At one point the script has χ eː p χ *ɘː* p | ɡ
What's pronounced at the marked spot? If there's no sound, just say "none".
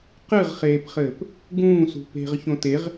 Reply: ɘː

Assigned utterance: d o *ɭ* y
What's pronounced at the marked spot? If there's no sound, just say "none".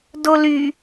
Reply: l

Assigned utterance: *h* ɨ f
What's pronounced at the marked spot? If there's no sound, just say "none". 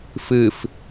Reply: f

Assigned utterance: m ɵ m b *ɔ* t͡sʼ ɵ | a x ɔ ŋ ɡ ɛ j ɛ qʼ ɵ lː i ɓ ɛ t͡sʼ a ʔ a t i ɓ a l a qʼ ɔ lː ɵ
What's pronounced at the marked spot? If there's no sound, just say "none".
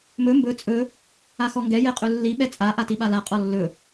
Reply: ɵ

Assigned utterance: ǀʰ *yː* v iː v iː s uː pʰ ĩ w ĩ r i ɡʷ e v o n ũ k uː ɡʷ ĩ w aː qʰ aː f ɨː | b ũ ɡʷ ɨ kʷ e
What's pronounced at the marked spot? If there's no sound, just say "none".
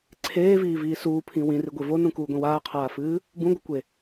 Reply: eː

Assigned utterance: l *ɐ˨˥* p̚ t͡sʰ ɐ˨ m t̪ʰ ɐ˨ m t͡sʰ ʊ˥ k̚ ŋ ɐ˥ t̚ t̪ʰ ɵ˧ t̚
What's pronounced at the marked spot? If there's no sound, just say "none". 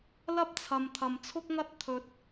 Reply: ɐ˥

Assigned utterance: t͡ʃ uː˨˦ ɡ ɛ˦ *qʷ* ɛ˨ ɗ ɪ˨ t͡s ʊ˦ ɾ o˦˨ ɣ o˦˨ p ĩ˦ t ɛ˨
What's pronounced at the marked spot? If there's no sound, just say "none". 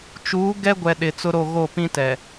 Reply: ɡʷ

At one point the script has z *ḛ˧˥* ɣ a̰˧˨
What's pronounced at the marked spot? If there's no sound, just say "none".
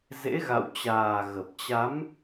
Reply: ḛ˧˥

